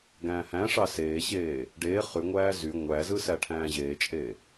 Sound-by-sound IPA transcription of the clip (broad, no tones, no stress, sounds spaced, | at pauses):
ɡ æ̃ː h æ̃ ʂ ɑ s eː ɕ eː | ɖ eː χ y ŋʷ æː z y ŋʷ æ z ɯ s æ ʈʰ æ̃ː ʑ eː t͡ʃʼ eː